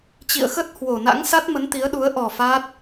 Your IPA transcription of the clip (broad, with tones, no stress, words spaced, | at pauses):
t͡ɕḭ˧˨ə̯xə˦˥t̚ hwo˨˩na̰˧˥ŋ sa˦˥t̚mə˨˦n t̪i˨˦ə̯ɗu˨˦ə̯ ʔɔ˨˩ fa˦˥t̚